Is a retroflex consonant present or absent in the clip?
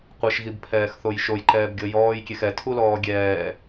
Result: absent